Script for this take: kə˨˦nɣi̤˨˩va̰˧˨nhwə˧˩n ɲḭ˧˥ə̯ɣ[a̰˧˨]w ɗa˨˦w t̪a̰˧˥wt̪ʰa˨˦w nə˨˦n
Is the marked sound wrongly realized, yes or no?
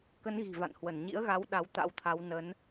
yes